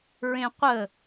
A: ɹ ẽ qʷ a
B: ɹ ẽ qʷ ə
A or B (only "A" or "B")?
B